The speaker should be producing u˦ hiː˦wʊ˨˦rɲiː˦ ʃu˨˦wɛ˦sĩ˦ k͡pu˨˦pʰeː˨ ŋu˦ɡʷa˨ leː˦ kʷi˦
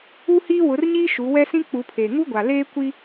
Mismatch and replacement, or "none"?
none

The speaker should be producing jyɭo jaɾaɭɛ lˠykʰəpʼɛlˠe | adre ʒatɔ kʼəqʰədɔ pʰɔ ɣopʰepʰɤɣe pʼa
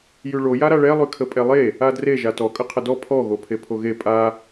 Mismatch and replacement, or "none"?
ɤ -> o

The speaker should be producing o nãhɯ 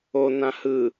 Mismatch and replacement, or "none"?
none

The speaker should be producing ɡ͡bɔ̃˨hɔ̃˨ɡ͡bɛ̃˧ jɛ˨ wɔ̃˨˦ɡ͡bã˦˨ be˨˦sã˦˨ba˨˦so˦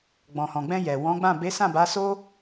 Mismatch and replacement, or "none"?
none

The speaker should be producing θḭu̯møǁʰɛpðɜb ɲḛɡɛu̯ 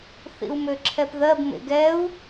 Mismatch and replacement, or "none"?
ɲ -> m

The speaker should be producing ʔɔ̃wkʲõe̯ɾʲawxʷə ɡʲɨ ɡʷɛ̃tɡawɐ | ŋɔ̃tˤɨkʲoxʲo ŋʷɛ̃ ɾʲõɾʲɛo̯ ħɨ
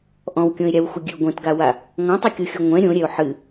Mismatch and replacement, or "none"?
ɐ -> a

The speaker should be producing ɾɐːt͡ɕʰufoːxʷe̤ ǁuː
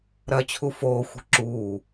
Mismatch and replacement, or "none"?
none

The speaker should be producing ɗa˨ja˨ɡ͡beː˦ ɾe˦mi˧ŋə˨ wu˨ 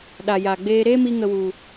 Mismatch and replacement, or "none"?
none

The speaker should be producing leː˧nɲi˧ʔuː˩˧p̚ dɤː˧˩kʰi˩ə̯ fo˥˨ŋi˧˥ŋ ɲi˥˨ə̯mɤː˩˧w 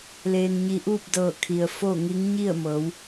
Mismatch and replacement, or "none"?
uː˩˧ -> uː˥˨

